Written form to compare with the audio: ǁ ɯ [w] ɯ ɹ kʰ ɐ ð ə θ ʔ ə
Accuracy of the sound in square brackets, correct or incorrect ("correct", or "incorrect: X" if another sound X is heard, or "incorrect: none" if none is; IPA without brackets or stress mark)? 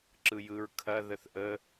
incorrect: j